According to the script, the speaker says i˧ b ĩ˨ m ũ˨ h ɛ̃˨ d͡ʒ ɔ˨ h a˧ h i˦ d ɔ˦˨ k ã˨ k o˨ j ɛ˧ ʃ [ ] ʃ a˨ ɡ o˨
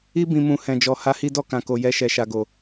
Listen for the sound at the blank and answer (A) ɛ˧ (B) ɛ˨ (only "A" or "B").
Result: B